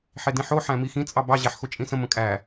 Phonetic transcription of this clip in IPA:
ħ e d ĩ ħ o ħ æ̃ m i x ĩ t͡sʼ ɑ b ɑ ʑ æ ħ x o t͡ʃʼ ĩ s ə̃ m ə̃ kʼ æ

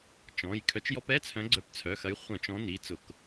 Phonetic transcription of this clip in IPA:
t͡ʃ ɔ̃˩˧˩ j kʰ œ˨˦ t͡ʃ j ɔ˧˥˧ p ɛ˧˥˧ t͡sʰ œ̃˨˦ ɡ͡ǀ œ˨˦ p t͡sʰ œ˩˧˩ x ɐ˨˦ j χʷ œ̃˧˩˧ t͡ʃ ɔ̃˨˦ n i˩˧˩ t͡s ʊ˧˩˧ k

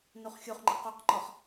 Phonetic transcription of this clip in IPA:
n u χ xʲ u χ ŋ͡ǃ ɪ q u q ŋ͡ǃ ɒ χ

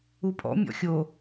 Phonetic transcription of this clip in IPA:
u pʼ ɔ̰ mʲ ɔ̰ xʲ o

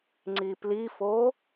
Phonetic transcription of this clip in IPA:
ŋ͡ǀ i p l i f o

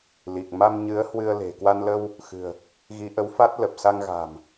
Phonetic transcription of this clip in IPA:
l i˨˩ k̚ m a˧ m ɲ ɨ˨˦ ə̯ h w ɨ˧ ə̯ l e̤˨˩ k w a˧ n l ə˧ w | x ɨ̤˨˩ ə̯ | ɣ i˨˦ ʔ ə˨˦ w f a˦˥ t̚ l ə˨˩ p̚ s a˧ ŋ ɣ a̤˨˩ m

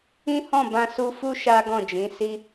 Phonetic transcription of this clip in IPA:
ĩ˦ h ɔ̃˦˨ b ã˧ s u˧ f u˦ ʃ a˦ ɡ ɔ̃˦˨ d͡ʒ ĩ˨˦ s i˦

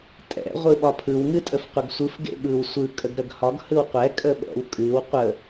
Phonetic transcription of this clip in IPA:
tʼ ɛ̰ ʁʷ ɯ ɓ ɒ pʰ ɯ w ŋ ɨ tʼ ə f qʷ ə ɡ sʷ ɯ f ɡ ḛ ɓ ɯ w sʷ ɯ kʼ ə ɡ ɾ ə ɡ h ɒ ɡ h ɯ w qʷ ɛ kʼ ə ɓ ɛ̰ w kʼ ɨ w qʷ ə

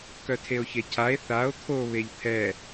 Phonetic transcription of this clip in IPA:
k œ tʰ e o̯ ç e cʰ a e̯ θ a o̯ t̪ʰ o β e ʎ t̪ʰ ɛ

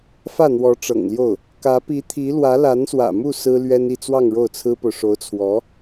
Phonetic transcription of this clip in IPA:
f ä˥˩ n̪ w ɔ˧˥ ʈ͡ʂ ɤ̰˨˩ ŋ l j o˥˩ ʊ̯ | k ä˧˥ p i˧˥ t̪ʰ i˧˥ l w ä˧˥ l a˧˥ n s w ä̰˨˩ m u˥˩ s ɹ̩˥ l ɥ ɛ˥ n i˥˧ t͡s w ɑ˥˧ ŋ ɻ o˥˩ ʊ̯ t͡sʰ ɹ̩˥ p o˨ ʊ̯ ʂ o˧˥ ʊ̯ t͡sʰ w ɔ˧˥

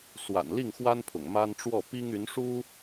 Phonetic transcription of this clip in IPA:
s w a̰˨˩ n l i˥˩ ŋ x w a˥ n pʰ ʊ̰˨˩ ŋ m a˥ n ʈ͡ʂ w ɔ˥˩ p i˥ ŋ y˧˥ n ʂ u˥

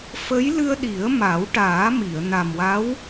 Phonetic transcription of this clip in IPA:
f ə˧˥ j l ɨ˧ ə̯ ɗ i˨˩˦ ə̯ m a˨˩˦ w ʈ aː˨˩˦ m i˨˩˨ ə̯ n a˨˩ m w a˧˥ w

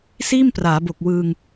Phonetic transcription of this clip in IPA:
s iː˥˩ m p r aː˩˦ b o˨˩ k̚ w ɯː˧ ŋ

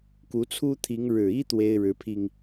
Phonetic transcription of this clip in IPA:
k u˨˦ t͡sʰ u˦ t̪ʰ i˨˦ ŋ ɻ ɻ̩˨˩ i˦ t̪ w e˦ ɪ̯ ɻ ɻ̩˨˦ pʰ i˧ ŋ

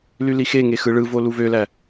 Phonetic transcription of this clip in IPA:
l y l i x e ŋ e x ɯ ɭ ɯ v o l u v ø l æ

